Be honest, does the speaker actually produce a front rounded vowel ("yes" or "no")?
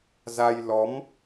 no